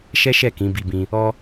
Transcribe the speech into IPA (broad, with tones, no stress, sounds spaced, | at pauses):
ʃ ɛ˦ ʃ ɛ˦˨ k ĩ˨˦ b i˧ b ĩ˧ | ɔ˦